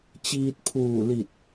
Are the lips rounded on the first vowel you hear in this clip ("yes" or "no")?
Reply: no